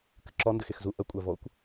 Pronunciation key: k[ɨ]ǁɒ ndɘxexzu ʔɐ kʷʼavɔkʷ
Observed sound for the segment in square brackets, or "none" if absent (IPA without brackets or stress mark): ɨ